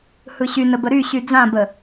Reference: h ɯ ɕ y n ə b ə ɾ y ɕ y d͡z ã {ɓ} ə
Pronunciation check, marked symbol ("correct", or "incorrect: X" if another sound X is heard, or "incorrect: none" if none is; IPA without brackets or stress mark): incorrect: b